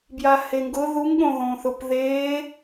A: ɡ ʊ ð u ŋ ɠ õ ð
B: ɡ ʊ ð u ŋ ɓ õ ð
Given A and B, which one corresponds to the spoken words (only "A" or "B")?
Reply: A